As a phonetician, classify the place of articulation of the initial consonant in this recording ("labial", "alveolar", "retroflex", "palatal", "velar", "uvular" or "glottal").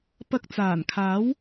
labial